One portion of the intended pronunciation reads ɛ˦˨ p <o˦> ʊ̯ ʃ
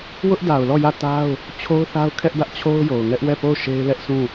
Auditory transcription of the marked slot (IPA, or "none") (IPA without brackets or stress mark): o˦˨